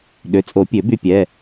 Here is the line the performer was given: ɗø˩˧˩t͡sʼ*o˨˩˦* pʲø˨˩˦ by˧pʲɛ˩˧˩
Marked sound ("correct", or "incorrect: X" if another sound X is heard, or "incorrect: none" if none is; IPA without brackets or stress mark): correct